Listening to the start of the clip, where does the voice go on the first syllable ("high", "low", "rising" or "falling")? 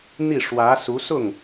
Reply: falling